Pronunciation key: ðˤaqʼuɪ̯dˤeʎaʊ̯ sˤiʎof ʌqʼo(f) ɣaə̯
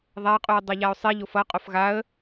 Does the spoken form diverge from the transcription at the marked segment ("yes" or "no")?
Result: no